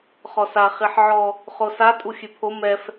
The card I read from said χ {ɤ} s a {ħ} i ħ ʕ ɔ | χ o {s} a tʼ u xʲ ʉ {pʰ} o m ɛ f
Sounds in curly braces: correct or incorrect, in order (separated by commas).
incorrect, incorrect, correct, correct